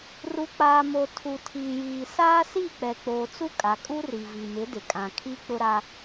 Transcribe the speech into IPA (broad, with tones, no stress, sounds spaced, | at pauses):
r u˨ k͡p aː˨ m o˨ tʰ u˨ tʰ iː˨ j iː˨ s aː˦ s i˦˨ k͡p ɛ˨ k͡p oː˨ t͡s u˦ kʼ a˨ kʼ u˦ r i˨ v i˨ m ɪ˨˦ d ɪ˨ kʼ ã˨ kʰ i˦ k͡p ʊ˦ ɾ a˦